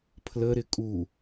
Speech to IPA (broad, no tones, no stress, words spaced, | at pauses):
pʰlə ɾɪkʼu